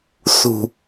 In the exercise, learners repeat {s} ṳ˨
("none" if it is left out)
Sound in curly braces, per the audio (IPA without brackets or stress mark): s